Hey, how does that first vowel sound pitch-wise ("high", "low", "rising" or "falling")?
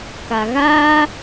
low